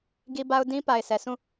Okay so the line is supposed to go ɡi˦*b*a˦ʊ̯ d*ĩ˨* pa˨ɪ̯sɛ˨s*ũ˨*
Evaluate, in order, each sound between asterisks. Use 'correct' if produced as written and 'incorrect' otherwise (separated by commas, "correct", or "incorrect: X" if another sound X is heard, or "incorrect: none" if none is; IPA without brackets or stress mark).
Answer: correct, incorrect: ĩ˦, incorrect: ũ˦˨